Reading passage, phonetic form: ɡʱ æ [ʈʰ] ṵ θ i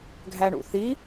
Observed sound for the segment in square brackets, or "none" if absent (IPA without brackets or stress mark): ɳ